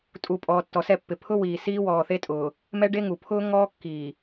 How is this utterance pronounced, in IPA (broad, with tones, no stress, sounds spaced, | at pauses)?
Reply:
tʼ u˨ pʼ ɔː˨ tː ɔ˨ s ɛ˦˨ pː ɪ˨ pʰ ʊ˦ w iː˨ s iː˦ w ɔː˨ θ e˦ tʼ ʊː˨ | m ɛ˦ ɖ e˦ ŋ u˨ pʰ ʊː˦ ŋ ɔː˦ kː iː˨